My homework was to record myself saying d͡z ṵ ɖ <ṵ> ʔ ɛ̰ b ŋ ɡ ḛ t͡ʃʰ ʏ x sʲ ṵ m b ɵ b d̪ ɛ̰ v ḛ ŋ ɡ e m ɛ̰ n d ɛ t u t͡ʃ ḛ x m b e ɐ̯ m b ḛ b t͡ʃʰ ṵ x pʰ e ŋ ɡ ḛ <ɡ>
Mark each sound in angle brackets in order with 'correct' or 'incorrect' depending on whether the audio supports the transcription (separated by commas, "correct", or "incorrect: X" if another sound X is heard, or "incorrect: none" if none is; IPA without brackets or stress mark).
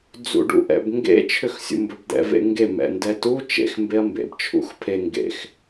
correct, incorrect: x